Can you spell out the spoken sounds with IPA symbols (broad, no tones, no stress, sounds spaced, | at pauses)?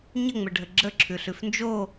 ɲ ə ŋ͡m ə ɖʱ ə ɡ͡ǁ ə ǁʰ ʉ ɬ ʉ f n d͡ʒ o